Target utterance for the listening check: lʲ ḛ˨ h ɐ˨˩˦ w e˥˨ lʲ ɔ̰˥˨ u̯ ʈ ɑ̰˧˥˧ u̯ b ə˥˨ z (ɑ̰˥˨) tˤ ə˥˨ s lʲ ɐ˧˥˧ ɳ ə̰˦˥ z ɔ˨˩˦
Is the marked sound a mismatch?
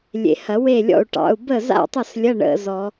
yes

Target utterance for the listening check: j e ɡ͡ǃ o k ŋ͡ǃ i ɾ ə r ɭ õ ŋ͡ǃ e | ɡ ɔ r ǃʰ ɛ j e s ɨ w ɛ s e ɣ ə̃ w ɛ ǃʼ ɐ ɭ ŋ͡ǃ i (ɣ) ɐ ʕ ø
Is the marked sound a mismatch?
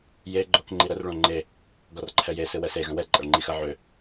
yes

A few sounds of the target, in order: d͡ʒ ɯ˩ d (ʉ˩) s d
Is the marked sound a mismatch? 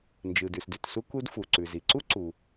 no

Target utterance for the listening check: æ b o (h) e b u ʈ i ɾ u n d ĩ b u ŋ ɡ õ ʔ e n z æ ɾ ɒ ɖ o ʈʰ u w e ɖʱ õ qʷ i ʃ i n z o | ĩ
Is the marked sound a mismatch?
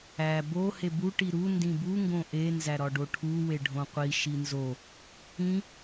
no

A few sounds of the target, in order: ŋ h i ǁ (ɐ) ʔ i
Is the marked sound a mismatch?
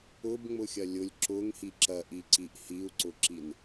no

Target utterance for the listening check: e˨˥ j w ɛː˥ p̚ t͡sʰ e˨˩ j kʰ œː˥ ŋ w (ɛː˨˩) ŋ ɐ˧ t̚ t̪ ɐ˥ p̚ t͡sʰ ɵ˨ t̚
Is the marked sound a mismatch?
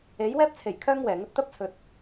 no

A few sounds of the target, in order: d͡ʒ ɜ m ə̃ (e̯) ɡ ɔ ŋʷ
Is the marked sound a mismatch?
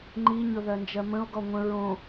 yes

